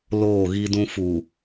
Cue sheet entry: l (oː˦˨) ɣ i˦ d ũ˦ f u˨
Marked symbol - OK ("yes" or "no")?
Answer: yes